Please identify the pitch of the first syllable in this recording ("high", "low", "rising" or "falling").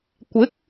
rising